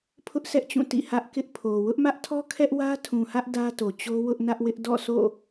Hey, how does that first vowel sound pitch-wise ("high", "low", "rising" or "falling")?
high